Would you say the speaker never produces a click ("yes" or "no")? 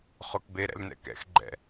no